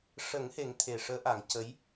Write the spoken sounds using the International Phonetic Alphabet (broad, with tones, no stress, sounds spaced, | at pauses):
ʂ ə˨˩˦ ŋ h e˨˩˦ ŋ t̪ʰ e˨˩ ʂ əː˧˥ ʔ a˨˩˦ ŋ c ə˧˥ j